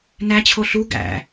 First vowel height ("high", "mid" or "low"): low